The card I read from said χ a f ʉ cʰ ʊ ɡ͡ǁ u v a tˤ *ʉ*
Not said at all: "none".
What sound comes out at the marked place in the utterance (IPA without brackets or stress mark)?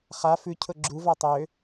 ø